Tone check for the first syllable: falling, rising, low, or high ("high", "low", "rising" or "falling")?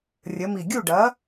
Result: rising